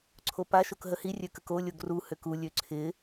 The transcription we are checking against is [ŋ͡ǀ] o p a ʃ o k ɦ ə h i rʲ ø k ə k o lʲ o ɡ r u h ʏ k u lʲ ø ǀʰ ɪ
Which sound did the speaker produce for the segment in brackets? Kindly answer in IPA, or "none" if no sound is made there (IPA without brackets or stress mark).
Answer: ǀʰ